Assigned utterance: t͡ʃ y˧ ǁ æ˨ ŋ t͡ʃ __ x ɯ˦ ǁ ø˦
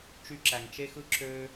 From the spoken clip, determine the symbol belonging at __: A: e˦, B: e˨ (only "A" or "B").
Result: A